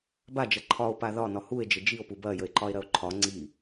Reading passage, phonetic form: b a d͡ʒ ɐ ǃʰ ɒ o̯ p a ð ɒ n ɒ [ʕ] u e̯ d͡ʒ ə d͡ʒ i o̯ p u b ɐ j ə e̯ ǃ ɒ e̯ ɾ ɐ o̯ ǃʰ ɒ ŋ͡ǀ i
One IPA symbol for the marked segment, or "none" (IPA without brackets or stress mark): h